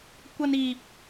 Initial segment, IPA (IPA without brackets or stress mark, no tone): kʷ